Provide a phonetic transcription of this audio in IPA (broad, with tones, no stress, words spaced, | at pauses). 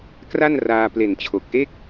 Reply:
kra˥˩nraː˧ ple˨˩nt͡ɕʰo˨˩k̚ʔe˥˩k̚